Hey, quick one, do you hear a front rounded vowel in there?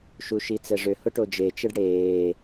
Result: yes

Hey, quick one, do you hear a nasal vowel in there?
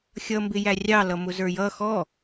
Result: no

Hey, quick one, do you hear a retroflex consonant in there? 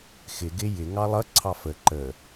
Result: no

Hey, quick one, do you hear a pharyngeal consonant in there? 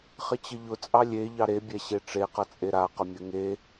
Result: no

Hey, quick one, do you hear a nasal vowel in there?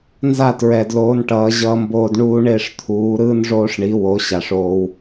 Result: no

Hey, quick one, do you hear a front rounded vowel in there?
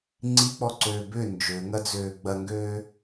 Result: yes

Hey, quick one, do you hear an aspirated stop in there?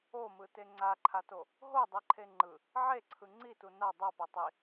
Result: yes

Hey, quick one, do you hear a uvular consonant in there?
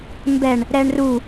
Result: no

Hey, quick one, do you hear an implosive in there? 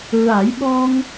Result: yes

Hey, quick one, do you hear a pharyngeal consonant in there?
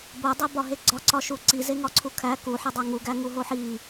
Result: yes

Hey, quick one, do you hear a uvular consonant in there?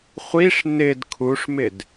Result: yes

